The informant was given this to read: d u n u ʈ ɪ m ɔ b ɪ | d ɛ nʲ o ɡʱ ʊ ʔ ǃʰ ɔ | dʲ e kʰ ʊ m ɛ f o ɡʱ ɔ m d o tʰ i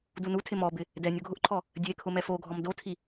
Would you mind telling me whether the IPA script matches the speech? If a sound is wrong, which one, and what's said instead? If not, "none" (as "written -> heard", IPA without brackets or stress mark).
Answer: ʈ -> tʰ